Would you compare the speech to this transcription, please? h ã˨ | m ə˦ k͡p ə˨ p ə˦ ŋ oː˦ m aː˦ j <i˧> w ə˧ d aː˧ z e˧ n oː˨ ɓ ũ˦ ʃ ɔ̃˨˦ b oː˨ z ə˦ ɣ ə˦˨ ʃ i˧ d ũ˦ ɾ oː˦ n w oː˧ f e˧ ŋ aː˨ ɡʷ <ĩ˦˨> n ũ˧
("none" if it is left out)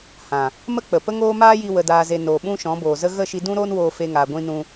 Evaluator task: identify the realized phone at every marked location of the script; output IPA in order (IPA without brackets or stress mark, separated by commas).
i˧, ĩ˧